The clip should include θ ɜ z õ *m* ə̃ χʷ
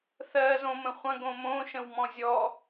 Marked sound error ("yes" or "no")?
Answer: no